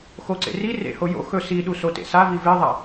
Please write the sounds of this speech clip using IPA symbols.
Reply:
x o ǀ ḛ r i r ḛ h o j o̰ x ɵ s i ɗ u s o t ḛ s a v i v e ðˤ a

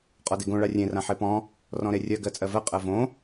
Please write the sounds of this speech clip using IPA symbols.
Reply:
qʼ ɔ d e ɡ õ ɭ a rʲ ẽ r ã ħ e p ɔ̃ | r ɔ̃ ɾ e rʲ ɜ ɡ ɜ t͡sʼ ɜ v ɜ qʼ ɜ v õ

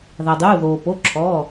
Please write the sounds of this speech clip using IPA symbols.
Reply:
ð a˩ dˤ uː˩˧˩ ð oː˩ p o˩˧˩ ǁʰ ɔː˩˧˩

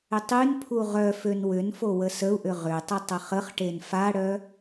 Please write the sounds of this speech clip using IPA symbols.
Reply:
ʏ tˤ y n pʰ u ʁ œ f ø n w ʏ n f o w ə s ə u̯ ʔ ʏ ʁ ʏ tˤ ɪ tˤ ɐ χ ə χ ʈ e n f a ɽ œ

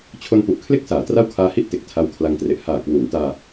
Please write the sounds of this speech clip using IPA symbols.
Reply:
t͡ɕʰ o˧ n p u˨˩ ʔ kʰ l e˥˩ k̚ s aː˩˦ t r a˥˩ w kʰ aː˦˥ h i˥˩ ʔ t e˨˩ k̚ tʰ a˦˥ w kʰ l a˧ ŋ t r e˨˩ ʔ h aː˨˩ k w uː˩˦ n t aː˧

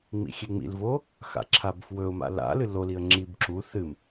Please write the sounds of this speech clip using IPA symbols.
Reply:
ŋ͡m ḭ xʲ e ŋ͡m ḭ l v o | x a̰ ǁʰ a b f w ɵ ʊ̯ m a̰ l a̰ l ɨ l o l i ə̯ ŋ͡ǁ i b ǁ u θ ɨ m

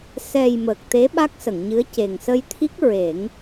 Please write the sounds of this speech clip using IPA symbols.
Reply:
s ɛ˨˩ j m əː˨˩ k̚ t̪ e˧˥ ɓ a˦˥ k̚ s ə˨˩˨ ŋ ɲ ɨ˧˥ ə̯ c e˨˩ ŋ s ə˧ j t̪ʰ i˦˥ k̚ ɹ e˨˩˦ ŋ

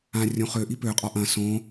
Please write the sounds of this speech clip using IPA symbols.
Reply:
ã rʲ õ χ ø ʔ i p ø qʼ ɒ ʔ ɐ̃ s õ

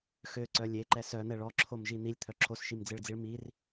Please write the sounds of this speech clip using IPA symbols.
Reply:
x ø ǀ œ lʲ e ǃ ɛ s œ n̪ ɛ ɭ ɔ ǁʰ o m ʒ i n̪ i lʲ t̪ʰ œ ǁʰ o s ʃ i m d͡z e ɭ d͡z i ɭ m i r

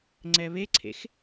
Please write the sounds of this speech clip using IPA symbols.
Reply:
ŋ͡ǀ ɛ β e ǀʰ ḛ x

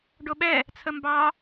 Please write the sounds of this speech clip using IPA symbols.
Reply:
ɖ o ɓ ɛ | t͡sʰ ə m b ɑ

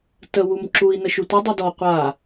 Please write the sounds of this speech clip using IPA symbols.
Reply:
t ə w u m ǁ u i̯ n ə ʃ u tʷ ə dˤ u d ɔ qʷ a

